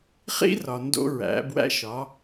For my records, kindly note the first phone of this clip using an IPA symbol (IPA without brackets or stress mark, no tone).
χ